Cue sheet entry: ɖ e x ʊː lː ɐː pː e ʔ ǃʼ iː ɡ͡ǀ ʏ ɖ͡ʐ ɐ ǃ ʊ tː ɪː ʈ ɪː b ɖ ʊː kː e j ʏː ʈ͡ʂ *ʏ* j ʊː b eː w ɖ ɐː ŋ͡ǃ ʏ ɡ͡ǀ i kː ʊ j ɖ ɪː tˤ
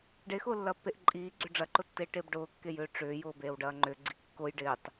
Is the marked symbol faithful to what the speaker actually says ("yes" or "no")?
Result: no